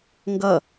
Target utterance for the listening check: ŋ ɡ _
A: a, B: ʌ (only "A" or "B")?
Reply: B